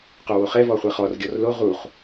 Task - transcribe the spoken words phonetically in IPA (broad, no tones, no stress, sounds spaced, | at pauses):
q o w o χ ɛ v ɔ χʷ ɐ χ ɔ r ɡʲ ɔ r l o ʁ u χ